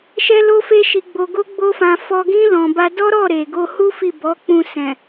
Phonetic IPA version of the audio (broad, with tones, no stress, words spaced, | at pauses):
ʃɛ˦lo˦fe˦ʃi˧ ɡ͡bo˧ɡo˦ɡ͡bo˦fã˧ fɔ˧ɡĩ˦ lɔ̃˧ ba˧dɔ˦ɾɔ˦˨ ɾe˨ɡo˧hu˦ fi˦˨bɔ˨˦k͡pũ˧sɛ̃˨